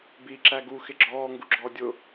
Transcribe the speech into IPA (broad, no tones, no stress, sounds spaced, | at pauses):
b iː ǁ æ ɡ u x ɪ ɡ͡ǁ ɔː ŋ ɡ u ɡ͡ǁ ɔː dʲ ʊ